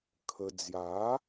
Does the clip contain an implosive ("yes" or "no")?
no